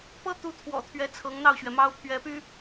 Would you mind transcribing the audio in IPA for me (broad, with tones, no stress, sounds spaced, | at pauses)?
p ɤ˥ t̪ u˧˥ t̪ʰ w ɔ̰˨˩ t̪ʰ ɥ ɛ˧˥ t͡sʰ ɤ˧˥ ŋ n̪ ɑ˥˩ ʊ̯ ɕ ɥ ɛ˩ m ɑ˥ ʊ̯ pʰ ɥ ɛ˧˥ p y˥